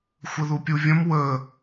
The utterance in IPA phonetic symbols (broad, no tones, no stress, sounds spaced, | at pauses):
xʷ ə ð u pʲ u vʲ ə̃ m w ə